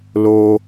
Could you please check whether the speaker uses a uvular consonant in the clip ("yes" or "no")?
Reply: no